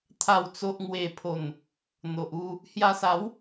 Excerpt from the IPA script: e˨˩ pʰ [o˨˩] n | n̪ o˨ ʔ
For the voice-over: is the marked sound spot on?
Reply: yes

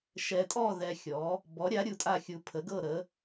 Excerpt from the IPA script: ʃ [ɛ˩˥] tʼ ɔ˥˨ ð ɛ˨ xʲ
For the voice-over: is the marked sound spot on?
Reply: no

